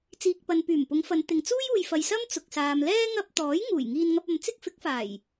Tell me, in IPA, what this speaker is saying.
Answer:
t͡s iː˨ k̚ p ɐ˨ n p yː˨˩ m p ʊ˨˧ ŋ f ɐ˨˧ n t̪ ɪ˨ ŋ t͡s uː˥ j uː˨ j f ɐ˨ j s ɐ˥ m t͡s ʊ˨ k̚ s aː˨ m l ɛː˥ ŋ ɐ˧ p̚ t̪ ɔː˨˥ j ŋ uː˨˩ j ŋ iː˧ n ŋ ɐ˧ p̚ ɐ˨˧ m t͡s ɪ˥ k̚ f ɪ˨˥ k̚ f aː˨˩ j

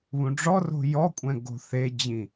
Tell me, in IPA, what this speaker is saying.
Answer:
β ũ ɖ͡ʐ ɔ r o̤ j ɔ kʷʼ ɛ̃ ɡ o̤ θ e d͡ʑ ĩ

